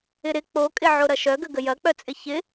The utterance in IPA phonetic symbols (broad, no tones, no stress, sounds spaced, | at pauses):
ɪ ɾ ɪ k͡p o kʼ ɪ ʕ o ɾ ɐ ʃ œ ɡ ə ɡ ə j ɐ k͡p œ t͡sʼ ɪ ç ɪ